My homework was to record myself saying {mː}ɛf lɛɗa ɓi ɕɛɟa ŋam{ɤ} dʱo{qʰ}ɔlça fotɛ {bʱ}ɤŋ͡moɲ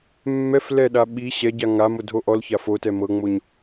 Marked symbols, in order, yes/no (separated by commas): yes, no, no, no